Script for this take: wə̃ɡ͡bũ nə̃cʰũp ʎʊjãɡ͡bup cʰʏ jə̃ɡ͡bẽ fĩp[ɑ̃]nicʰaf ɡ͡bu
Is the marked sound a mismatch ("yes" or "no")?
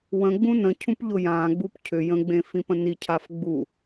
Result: yes